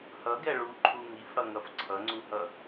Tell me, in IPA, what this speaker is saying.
h ʌ ɡ ɛ ɭ u ǃʰ u ŋ i f ɽ ʌ ŋ ʌ f ǀʰ ʌ ŋ͡ǀ u h ʌ

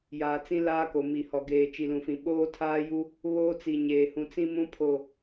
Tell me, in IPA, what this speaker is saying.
j aː˨ t͡s ĩ˦ l aː˦ k o˨ m i˨ h ɔ˨ ɡ eː˨ t͡ʃ i˨ l ũ˨ f ĩ˨ ɓ oː˦ tʰ aː˦ j u˦ | β oː˦ t͡s i˨ ɲ eː˨ h ũ˨ t͡s ĩ˦ m ũ˦ pʰ o˨

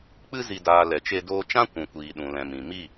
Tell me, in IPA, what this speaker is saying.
k͡p ɨ˧ z i˨ d aː˨ l ɛ˨ t͡ʃ e˧ d oː˧ t͡ʃ ã˦ kʷ ũ˨ kʷ iː˨ ɗ ũ˨ l ɛ̃˨ m ĩ˨ m i˦˨

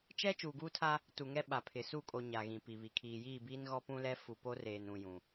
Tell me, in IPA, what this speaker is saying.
t͡ʃ ɛ˦ t͡ʃ uː˨ ɡ uː˦ tʰ a˦ | t u˨ ŋ ɛ˦ ɓ a˨ pʰ ɪ˨ s u˦˨ kʼ o˨ ɲ a˨ ɣ ĩ˨ p i˨ β i˨ kʰ iː˨ j iː˦˨ b iː˦ n ɣ ɔ˦ p ũ˦ l ɛ˦ f u˨ p o˦ r eː˨ n ũ˨ j ũ˨

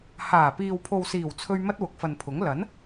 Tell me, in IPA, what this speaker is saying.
h aː˨˩ p iː˨ w pʰ o˨ w s iː˨˩ w t͡sʰ ɵ˧ ɥ m ɐ˥ t̚ w ʊ˨˥ k̚ f ɐ˨ n pʰ ʊ˨˥ ŋ l ɐ˨˥ n

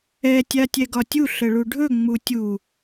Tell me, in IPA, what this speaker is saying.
ɛ tʲ a tʲ ɛ ɡ ɒ tʲ u ɬ ə ɭ u ɖʱ ɵ ŋ͡m u tʲ u

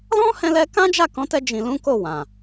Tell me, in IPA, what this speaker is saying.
l ɔ̃˦ h ɛ̃˧ l ɛ˧ k ã˦ d͡ʒ a˦˨ k ɔ̃˨˦ t ɛ˧ d͡ʒ ĩ˨ l ũ˨˦ k o˦˨ w ã˨

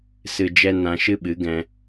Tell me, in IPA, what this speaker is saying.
s ɨ˧ d͡ʒ ɛ˦ n ã˧ ʃ ɨ˦ ɓ ɨ˨˦ ɡ ɛ̃˧

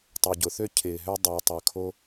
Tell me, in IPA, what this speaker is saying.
tˤ ø˨ ɟ ʊ˨ θ ø˦ cʰ ɪː˨ ɦ ø˧ dˤ ʏː˨ tˤ y˨ kʰ o˦

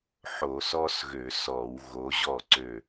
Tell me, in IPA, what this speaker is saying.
ħ o˧˩˧ s ɔ˥ s ɣ ø˧˩˧ s ɔ˧˩˧ w ɣ o˨˦ ʑ ɔ˥˩ ǀ ø˧˩

